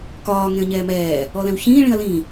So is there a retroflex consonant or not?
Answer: yes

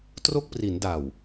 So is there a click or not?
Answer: no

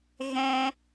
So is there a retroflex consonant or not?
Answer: no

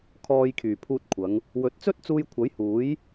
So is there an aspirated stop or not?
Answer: yes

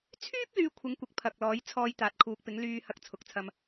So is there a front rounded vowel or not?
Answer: yes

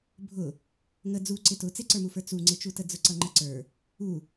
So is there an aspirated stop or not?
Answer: no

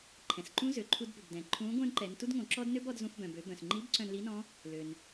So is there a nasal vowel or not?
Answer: yes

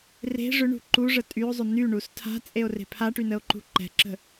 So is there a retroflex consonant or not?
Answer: yes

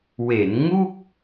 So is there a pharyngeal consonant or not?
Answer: no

